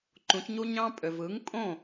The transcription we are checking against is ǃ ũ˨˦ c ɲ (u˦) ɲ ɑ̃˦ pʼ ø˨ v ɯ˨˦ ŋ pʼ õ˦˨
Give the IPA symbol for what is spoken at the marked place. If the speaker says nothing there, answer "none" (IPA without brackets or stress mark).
u˦